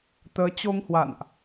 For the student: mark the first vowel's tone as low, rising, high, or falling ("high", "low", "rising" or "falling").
rising